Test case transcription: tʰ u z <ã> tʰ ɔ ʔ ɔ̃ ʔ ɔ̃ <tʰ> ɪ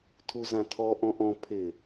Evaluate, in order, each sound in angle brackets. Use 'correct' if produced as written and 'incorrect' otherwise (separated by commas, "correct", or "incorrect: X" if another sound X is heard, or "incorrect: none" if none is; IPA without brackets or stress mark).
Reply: correct, incorrect: pʰ